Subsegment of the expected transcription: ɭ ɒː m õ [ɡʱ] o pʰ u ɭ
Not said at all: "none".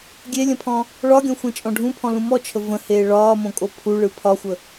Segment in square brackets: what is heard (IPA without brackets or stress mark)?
kʼ